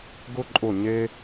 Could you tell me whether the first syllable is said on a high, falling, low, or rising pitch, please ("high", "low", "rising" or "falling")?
high